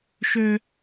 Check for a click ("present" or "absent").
absent